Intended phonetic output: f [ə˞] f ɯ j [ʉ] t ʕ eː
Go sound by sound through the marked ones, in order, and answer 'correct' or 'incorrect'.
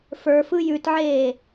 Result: correct, correct

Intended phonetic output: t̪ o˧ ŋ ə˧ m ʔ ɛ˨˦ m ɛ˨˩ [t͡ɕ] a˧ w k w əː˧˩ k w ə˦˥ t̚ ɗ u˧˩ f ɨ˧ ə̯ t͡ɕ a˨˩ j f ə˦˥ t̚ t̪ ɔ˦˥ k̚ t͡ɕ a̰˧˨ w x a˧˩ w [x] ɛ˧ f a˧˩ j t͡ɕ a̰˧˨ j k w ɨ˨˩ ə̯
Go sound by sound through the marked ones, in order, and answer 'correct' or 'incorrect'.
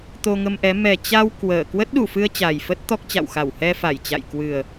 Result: correct, incorrect: h

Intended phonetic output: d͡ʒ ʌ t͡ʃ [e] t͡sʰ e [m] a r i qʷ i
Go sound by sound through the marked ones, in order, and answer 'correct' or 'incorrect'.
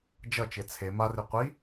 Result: correct, correct

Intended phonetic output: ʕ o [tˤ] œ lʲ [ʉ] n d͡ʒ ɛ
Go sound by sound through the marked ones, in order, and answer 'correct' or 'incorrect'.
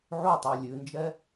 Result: correct, correct

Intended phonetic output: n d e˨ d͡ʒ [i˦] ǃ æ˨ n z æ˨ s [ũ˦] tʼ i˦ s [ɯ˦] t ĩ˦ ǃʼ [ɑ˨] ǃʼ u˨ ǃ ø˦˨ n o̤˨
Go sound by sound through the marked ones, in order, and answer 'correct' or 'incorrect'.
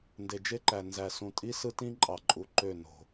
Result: incorrect: e˦, incorrect: ũ˨, correct, correct

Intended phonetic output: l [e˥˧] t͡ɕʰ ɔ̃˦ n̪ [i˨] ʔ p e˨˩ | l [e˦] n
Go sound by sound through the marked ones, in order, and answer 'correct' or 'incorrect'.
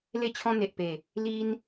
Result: correct, incorrect: e˨, incorrect: i˦

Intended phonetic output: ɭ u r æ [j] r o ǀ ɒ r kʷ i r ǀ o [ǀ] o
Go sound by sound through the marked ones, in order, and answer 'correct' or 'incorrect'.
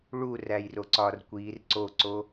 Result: correct, correct

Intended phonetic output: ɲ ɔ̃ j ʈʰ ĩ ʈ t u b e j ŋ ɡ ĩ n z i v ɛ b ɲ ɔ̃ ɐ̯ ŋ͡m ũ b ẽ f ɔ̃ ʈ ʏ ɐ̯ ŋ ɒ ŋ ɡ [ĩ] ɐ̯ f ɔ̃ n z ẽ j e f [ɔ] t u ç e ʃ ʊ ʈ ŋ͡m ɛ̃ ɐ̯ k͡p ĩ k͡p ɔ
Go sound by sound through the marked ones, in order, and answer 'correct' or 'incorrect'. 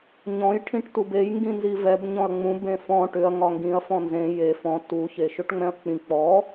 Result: correct, incorrect: ɔ̃

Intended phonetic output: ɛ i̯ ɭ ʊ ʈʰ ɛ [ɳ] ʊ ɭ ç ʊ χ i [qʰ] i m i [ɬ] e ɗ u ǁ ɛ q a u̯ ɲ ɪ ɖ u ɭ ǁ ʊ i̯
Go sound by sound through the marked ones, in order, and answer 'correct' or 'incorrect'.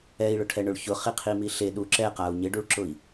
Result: correct, correct, correct

